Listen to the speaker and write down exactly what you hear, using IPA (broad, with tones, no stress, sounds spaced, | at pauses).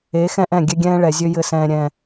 e˨˦ x ɛ̃˦ ʔ ɛ̃˦˨ ɡʲ ɛ˦ ɡʲ ɛ̃ː˦ ɭ ɛ˨ zʲ ø˦ j ɘ˦ s ɛ̃ː˦ ɾʲ ɛ̃˦